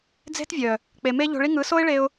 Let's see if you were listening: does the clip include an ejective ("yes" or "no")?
no